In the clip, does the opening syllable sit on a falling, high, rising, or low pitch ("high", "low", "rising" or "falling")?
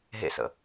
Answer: high